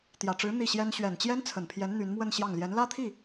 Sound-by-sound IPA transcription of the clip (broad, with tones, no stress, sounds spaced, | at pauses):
t̪ j ä˨˩ ʈ͡ʂ ɻ̩˧˥ n̪ i˥˩ ɕ j ɛ˥ n ɕ ɥ ɛ˨˩ n t͡ɕ j ɛ˥ n t͡sʰ ə˨˩ n pʰ j ɛ˧˥ n n̪ y˧˥ n m w ə˥˧ n ɕ j ɑ˥˩ ŋ l j ɛ˧˥ n l ä˥ t̪ʰ i˥˩